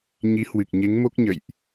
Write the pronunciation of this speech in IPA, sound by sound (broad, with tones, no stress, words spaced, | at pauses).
ɲi˨˦hwɨ˨˩k̚ɲe˨˦ŋmo˦˥k̚ ɲə̰˧˨jʔ